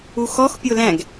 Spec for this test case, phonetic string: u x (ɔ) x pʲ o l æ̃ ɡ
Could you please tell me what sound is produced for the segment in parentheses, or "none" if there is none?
ɔ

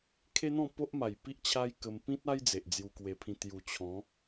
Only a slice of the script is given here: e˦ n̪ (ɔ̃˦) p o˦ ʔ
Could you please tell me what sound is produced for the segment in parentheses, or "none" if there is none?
ɔ̃˥˧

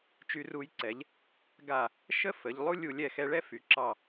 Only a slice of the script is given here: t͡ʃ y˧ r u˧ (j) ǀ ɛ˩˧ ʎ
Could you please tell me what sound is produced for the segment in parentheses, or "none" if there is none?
j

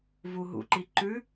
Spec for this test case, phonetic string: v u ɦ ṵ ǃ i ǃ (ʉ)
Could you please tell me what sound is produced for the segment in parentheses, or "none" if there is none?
ʉ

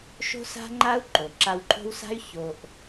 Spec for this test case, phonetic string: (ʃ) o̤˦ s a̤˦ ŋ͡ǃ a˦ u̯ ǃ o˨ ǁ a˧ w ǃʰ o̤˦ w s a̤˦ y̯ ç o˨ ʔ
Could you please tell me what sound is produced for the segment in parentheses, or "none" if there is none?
ʃ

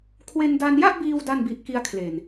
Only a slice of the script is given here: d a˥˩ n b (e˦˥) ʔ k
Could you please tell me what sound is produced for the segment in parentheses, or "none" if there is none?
i˦˥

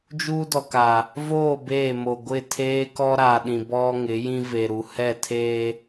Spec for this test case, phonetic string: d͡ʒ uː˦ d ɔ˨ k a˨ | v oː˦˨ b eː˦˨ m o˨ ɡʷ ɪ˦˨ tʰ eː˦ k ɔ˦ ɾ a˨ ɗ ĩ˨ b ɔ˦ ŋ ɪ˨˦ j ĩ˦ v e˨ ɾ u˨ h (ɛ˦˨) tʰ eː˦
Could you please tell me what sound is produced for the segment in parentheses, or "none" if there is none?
ɛ˦˨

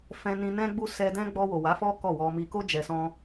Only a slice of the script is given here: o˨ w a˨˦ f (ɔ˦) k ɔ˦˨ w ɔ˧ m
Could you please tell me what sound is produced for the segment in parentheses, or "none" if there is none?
ɔ˦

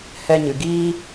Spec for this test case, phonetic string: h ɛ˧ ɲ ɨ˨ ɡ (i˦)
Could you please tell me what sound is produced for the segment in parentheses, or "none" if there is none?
iː˦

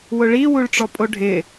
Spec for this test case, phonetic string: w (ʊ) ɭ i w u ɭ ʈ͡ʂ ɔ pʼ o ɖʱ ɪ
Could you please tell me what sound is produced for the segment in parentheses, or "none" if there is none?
ʊ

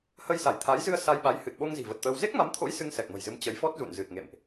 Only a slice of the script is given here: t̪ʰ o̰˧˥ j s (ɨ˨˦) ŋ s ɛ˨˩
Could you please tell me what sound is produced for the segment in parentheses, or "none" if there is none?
ɨ˧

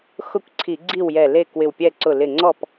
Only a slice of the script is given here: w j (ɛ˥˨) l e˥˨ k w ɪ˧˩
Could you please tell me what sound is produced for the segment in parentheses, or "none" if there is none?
ɛ˧˩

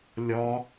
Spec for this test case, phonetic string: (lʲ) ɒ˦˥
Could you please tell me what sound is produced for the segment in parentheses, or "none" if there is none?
lʲ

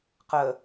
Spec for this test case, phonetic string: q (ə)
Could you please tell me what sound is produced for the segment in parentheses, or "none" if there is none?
ə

